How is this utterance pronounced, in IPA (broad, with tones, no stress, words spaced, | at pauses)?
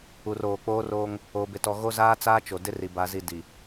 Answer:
u˨roː˨ k͡poː˦roː˦ŋ | oː˨bɪ˨tɔ˨ ɣo˦zaː˦ t͡saː˦t͡ʃo˨ dɪ˦ri˨ ba˨zi˨ di˨